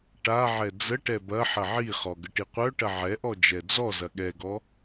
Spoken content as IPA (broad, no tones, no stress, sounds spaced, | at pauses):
ʈ a ʕ ɛ d͡z ə ʈ ɛ b ɐ ħ ɐ ʕ i χ ɔ ɡ ə ʈ i qʷ œ ʈ ɐ ʕ ɛ ʔ ɔ d͡ʒ ɛ d͡z ɔ z ɐ ɠ ɛ ɡ ɔ